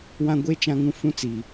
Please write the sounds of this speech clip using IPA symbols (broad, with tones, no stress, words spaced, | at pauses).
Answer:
wã˦ ɡʷe˦ t͡ʃã˦ŋũ˦ fũ˦t͡si˨